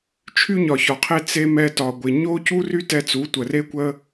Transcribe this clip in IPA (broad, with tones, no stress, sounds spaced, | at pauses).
t͡ʃʰ y˦ ɲ ɒ˨ ç ɒ˨ qʰ e˧ t͡s e˦ m ɛ˧ t ɒ˨ ɡʷ ɪ˨ ɲ o˦ c u˦ r y˦ t ɛ˧ t͡s u˨˦ tʷ ə˨ r e˦ kʷ ə˦